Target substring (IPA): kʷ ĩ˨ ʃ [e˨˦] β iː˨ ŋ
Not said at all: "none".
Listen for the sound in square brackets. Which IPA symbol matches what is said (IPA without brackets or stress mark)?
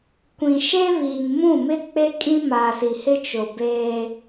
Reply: e˦